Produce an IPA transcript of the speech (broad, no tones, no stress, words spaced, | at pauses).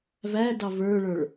vædɑ və˞ɭə˞ɭ